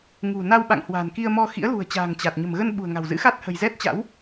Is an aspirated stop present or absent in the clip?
absent